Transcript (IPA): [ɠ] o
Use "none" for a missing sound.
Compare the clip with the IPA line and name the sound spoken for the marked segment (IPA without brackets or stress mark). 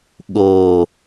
ɠ